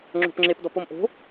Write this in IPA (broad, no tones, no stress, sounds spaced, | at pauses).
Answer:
ŋ͡ǁ o̤ p ŋ͡ǁ e p d ɔ p o m ʔ o̤